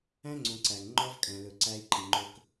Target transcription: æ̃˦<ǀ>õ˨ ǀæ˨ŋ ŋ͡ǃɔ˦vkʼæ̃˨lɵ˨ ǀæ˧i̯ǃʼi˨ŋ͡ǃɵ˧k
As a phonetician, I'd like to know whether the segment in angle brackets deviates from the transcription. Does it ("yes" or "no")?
yes